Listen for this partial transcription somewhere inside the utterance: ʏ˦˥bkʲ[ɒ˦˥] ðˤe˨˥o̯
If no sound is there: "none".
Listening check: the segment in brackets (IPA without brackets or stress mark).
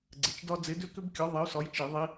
ɒ˨˥